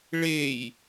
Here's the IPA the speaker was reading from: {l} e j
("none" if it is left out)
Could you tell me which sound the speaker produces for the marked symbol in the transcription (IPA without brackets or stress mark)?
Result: ɭ